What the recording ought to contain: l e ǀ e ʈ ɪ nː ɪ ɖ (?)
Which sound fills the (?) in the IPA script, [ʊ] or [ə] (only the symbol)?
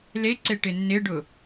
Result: ʊ